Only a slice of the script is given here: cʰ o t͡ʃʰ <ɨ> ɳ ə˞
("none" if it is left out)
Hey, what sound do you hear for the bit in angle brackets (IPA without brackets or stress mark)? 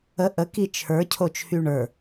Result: y